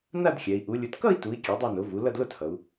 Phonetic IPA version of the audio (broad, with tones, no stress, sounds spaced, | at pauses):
n a˥˧ d xʲ ɛ˩˧ i̯ ʔ u˩˧ lʲ u˩˧ t k ʌ˥˧ i̯ t u˩˧ i̯ kʲ e˩˥ dˤ ɛ˥˧ n o˩˥ v u˩˥ l ʌ˥˧ d l o˥˧ t h ʌ˩˧ u̯